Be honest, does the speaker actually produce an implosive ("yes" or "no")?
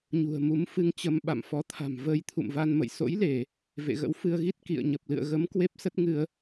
yes